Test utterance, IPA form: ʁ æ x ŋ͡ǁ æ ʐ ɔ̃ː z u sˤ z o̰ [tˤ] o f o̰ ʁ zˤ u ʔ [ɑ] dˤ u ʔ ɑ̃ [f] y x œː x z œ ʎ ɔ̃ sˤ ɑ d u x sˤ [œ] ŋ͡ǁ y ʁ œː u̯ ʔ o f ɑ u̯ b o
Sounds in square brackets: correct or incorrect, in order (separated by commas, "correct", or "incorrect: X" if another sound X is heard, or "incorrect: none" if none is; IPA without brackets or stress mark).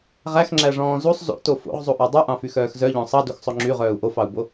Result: incorrect: t, correct, correct, incorrect: ɵ